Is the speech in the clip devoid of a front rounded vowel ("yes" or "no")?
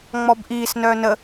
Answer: no